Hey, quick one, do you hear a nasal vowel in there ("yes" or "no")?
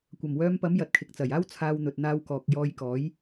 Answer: no